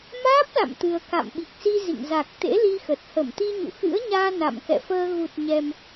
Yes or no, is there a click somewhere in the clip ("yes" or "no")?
no